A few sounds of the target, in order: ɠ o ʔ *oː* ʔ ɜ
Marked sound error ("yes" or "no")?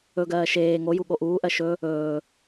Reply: yes